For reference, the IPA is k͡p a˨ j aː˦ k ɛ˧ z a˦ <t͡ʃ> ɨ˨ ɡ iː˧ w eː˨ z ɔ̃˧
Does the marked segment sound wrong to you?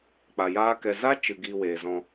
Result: no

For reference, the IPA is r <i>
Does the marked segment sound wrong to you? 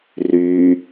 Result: yes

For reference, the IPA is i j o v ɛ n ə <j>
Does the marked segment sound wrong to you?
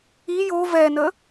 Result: yes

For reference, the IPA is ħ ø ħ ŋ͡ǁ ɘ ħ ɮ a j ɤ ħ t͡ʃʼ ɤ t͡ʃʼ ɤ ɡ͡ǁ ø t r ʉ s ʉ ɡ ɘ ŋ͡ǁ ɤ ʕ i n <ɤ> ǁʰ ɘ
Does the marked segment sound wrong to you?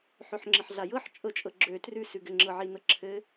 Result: no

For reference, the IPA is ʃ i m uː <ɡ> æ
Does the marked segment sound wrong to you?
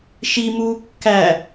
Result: yes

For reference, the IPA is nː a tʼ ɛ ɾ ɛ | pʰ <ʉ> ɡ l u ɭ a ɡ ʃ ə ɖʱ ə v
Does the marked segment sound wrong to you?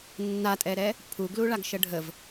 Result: yes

